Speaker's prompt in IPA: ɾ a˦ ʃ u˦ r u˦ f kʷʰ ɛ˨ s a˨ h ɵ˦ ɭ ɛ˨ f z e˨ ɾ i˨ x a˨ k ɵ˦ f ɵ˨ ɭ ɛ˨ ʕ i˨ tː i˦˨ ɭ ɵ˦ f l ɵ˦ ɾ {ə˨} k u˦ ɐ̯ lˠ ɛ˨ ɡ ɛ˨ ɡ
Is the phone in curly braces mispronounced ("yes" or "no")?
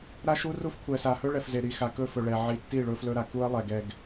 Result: yes